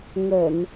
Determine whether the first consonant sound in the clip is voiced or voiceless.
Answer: voiced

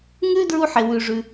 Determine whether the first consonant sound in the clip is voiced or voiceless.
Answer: voiced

